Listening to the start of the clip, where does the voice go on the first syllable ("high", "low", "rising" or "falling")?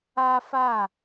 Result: high